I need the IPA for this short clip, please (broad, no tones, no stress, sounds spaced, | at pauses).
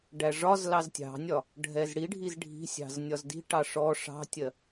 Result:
ɖ æ ʐ ɒ z l ɑ z tʲ ɑ̤ nʲ ɒ | ɖʱ ɛ z ɽ i ɖʱ i z ɖʱ i̤ sʲ ɑ̤ z nʲ ɒ z d i̤ ʈ ɑ ʂ ɔ ʂ ɑ̤ tʲ ɜ